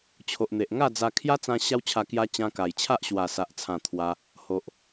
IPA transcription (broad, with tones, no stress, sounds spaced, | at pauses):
t͡ɕʰ o˨ ʔ n̪ e˨ ʔ ŋ a˥˧ d͡z a˧ kʰ j a˦ t͡s ã˧ ɕ a˦ w t͡ɕʰ a˧ k j a˧ t͡ɕ ã˧ k a˨˩ j t͡ɕʰ a˦ ʔ ɕ w a˨˩ s a˨ ʔ t͡sʰ ã˨˩ t̪ʰ w a˧ | h o˨ ʔ